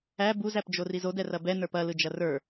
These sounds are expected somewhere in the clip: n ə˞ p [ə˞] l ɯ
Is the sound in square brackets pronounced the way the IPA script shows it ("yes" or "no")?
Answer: no